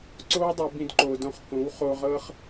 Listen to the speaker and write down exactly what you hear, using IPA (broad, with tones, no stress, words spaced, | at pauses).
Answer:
ǀo˦wdˤɯ˨ bĩ˧dǃo˨dõ˧χ kõ˨˦wχo˧ʁɤ˦χ